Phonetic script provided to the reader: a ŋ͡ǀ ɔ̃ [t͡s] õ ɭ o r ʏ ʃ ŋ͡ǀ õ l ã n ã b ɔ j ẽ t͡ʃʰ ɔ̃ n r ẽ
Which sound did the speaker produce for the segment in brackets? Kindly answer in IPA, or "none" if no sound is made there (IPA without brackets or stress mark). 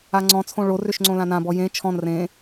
t͡sʰ